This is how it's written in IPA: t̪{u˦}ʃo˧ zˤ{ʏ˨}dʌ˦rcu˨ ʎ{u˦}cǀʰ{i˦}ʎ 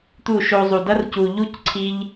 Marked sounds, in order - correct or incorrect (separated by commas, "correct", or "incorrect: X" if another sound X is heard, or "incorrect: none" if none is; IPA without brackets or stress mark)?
incorrect: u˦˨, incorrect: u˨, correct, incorrect: i˧